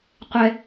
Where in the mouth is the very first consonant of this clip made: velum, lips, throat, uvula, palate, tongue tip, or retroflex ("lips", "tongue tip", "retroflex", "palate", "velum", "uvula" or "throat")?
uvula